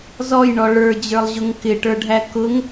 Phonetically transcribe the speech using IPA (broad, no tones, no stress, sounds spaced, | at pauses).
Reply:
z ɔ j ɳ ɔ ɭ ə˞ d͡ʑ ə˞ lˠ ʑ ʊ ŋ k ɪ ʈ ə˞ ɖʱ æ k ʊ ŋ